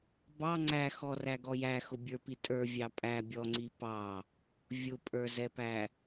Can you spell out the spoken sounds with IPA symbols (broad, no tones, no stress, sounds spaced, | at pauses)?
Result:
b ɑ ŋ͡ǀ æ x ɔ r æ ɡ ɔ j æ x ʊ bʲ ə˞ p i tʼ ə˞ vʲ ɑ pʼ æ bʲ ɔ ŋ͡ǀ i p ɑ | vʲ ʊ pʼ ə˞ z ɛ p æ